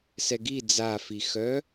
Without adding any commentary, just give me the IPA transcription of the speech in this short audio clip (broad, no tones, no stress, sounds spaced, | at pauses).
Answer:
s ɛ ɡ i d͡z a f i x œ